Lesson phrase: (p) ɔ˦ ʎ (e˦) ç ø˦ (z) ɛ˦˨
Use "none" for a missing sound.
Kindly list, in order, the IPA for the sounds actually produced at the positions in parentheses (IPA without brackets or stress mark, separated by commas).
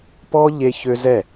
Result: p, e˦, z